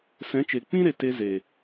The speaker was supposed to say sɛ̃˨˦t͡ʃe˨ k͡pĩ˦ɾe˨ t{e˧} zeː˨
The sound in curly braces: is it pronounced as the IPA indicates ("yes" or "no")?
yes